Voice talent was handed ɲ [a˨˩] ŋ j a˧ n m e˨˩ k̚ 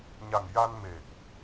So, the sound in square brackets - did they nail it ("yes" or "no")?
yes